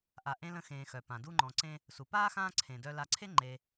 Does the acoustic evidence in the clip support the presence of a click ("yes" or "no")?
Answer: yes